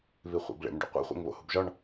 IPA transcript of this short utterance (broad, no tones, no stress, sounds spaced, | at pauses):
β i χʷ ḛ b ɭ ḛ m ɖ o̰ qʷ ḛ χʷ ḛ ŋ β o̰ h u b ʒ ɒ ɳ